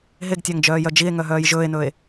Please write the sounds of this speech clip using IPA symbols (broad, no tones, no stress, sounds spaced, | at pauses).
ɦ e ɡ tʲ ɑ ŋ d͡ʒ œː j œ d͡ʒ i e̯ ŋ œ ɦ œː j ʒ ɵː e̯ n ɵː e̯